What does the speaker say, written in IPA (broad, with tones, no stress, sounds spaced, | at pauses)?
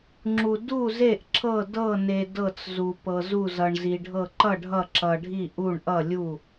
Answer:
ŋ͡ǁ u˧ d u˥˨ z e˥˨ ʔ ǁ ɤ˥˨ d ɤ˥˨ n e˧ d ɤ˥˨ t͡s z u˧ p ɤ˧ z u˥˨ z ʌ˧ ɳ z i˧ ɖʱ ɤ˥˨ ǃ ʌ˥˨ ɖʱ ʌ˥˨ ǁ ʌ˧ ɖʱ i˥˨ ʔ u˥˨ ɳ ʔ ʌ˥˨ lʲ u˥˨